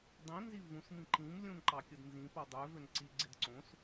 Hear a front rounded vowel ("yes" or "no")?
yes